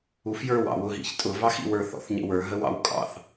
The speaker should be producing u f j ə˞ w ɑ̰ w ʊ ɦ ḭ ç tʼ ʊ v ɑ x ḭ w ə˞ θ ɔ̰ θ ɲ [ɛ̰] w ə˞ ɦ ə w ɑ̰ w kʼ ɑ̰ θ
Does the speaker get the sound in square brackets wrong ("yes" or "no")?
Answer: yes